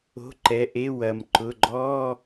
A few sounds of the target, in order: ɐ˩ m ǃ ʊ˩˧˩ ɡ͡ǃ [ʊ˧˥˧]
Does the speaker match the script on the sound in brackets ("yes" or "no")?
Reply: no